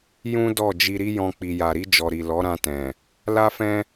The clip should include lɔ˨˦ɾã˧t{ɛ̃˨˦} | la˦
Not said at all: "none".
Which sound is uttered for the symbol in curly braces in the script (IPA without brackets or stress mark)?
ɛ̃˨